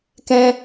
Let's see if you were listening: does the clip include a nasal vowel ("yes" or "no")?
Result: yes